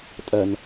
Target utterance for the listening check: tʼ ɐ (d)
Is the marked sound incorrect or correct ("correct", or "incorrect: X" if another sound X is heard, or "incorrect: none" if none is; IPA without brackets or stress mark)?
incorrect: n